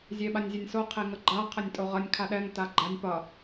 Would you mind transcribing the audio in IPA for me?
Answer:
zʲeɓanʲzʲʌnʲso qʰeŋʌɡ͡ǃa qʰənʲtʼoʁʌnʲ kʰaɗɛŋ taɡ͡ǃanʲ pʌ

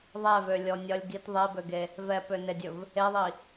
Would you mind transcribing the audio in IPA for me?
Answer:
ðˤɛvølʲɔ nʲʌlʲ ɡit ðˤebøɡe | vɛpønedʲɵv | eðˤi

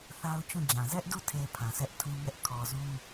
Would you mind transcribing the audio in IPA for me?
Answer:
θa˦ʊ̯t͡ɕũ˦˨d͡ʑã˨ zɛ˦ʔdu˦˨ tʰe˨ pʰã˨sʰɛ˦ʔtʰũ˦ ŋɛ˦ʔ kʰɔ˨zũ˦

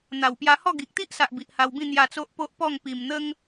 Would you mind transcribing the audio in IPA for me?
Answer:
n̪a˨˩wpja˧hɔ˥˧ ɡi˨k̚t̪i˦ʔsa˨ʔ bi˨ʔha˧wbĩ˥˧ n̪ja˧ t͡so˦ʔpo˦ʔpɔ˥˧ŋ pi˨˩mn̪ə˦ŋ

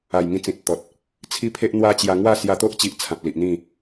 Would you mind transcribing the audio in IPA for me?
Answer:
a˨˩jŋĩ˧ t͡sĩ˨t̚t̪ɔ˨t̚ | t͡sʰi˦pʰe˦ʔn̪wa˦t͡ɕja˧ ŋwa˥˧sja˧t̪o˦ʔt͡ɕi˨ʔ t͡sʰã˨p̚li˨ʔn̪ĩ˥˧

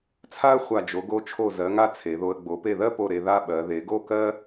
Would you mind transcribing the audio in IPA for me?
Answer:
t͡sʰa˥ə̯χʷa˧˩ d͡ʒo˩˧ɡo˥˧ t͡ʃʰo˧˩zɜ˩˧ŋa˧ t͡sʰe˩˧ðo˧ə̯ ɡ͡bo˩˧pe˧˩ðɜ˥˧po˧˩ ɾe˧ða˥˧ɓɜ˩˧ ðe˩˧ɡo˥˧kɜ˥

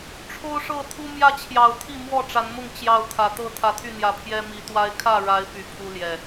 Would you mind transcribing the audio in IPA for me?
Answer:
ʈ͡ʂʰo˦ʊ̯ʂɤ˥˨ t̪ʰu˦mjä˥˨t͡ɕʰjɑ˨˩ʊ̯ t̪ʰi˥˨mwɔ˥˨ʈ͡ʂa˨˦nmʊ˥˨ŋ t͡ɕjɑ˥˨ʊ̯ t̪ʰä˨˩t̪ɤ˥˨ t̪ʰä˨˦t̪ʰy˥˨n̪jä˨˦ pʰjɛ˦mi˨˦t̪wa˦ɪ̯ kʰä˥˨ɻa˨˦ɪ̯ py˨˩pʰu˦ljɛ˨˩

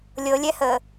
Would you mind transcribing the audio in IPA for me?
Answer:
lʲɤlʲɛhəː

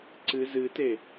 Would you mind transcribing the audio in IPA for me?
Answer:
ǀɨ zɨte

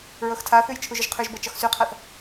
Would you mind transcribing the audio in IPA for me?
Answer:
ɹɤxtʰaθʉj t͡ʃʰuʒʏʒqʰʉʒbɤ t͡ʃɒxsʉqʰaθ

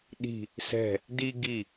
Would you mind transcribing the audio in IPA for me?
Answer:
ɗi̤ | sɛ̤ | di ɡi

